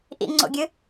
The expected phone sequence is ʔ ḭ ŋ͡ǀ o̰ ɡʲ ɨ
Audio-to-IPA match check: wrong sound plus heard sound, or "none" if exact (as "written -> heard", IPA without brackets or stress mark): none